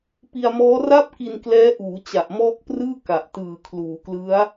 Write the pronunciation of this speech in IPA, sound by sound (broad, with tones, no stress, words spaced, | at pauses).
pi˧a̯mɔː˦˥ra˥˩p̚ki˧n klɛː˦˥ʔuː˩˦ t͡ɕa˨˩ʔmɔː˦˥k̚prɯː˥˩ ka˨˩ʔtɯː˨˩ kʰluː˩˦klɯ˦˥a̯